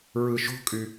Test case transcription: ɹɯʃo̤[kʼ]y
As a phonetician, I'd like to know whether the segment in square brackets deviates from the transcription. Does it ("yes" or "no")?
no